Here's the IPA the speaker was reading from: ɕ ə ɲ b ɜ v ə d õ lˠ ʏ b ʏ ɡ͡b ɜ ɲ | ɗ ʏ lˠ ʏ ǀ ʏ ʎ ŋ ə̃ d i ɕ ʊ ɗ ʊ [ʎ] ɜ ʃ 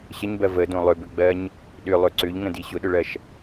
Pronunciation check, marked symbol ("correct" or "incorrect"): incorrect